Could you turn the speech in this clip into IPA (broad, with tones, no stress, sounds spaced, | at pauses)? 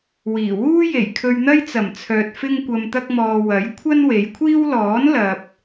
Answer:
w iː˨˩ w uː˥ j e˨˩ j kʰ ɵ˧ ɥ n̪ ɐ˥ j t͡s ɐ˨˩ m t͡sʰ œː˨ t̚ f ɪ˥ ŋ kʷ ɐ˧ m t̪ ɐ˥ k̚ m ɔː˧ w ɐ˨˥ j kʷʰ ɐ˥ n w e˨˧ j kʷʰ iː˥ w l ɔː˨˥ n l ɐ˨ p̚